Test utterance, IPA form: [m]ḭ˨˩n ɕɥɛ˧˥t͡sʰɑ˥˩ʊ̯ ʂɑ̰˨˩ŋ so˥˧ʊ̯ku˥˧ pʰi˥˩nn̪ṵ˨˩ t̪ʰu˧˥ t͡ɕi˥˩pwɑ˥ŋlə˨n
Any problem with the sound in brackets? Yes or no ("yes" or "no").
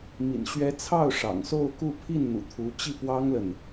no